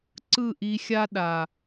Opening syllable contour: falling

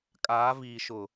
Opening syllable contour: rising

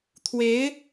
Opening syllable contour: rising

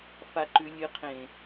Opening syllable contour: low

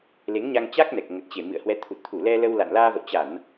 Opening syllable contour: rising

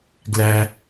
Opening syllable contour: low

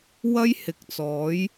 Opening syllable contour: high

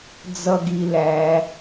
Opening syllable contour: high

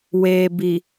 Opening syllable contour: low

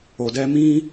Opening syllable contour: low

